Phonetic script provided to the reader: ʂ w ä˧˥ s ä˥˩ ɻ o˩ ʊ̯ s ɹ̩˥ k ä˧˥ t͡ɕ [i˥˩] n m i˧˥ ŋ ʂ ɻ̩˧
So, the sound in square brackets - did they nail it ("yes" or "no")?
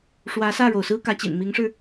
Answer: no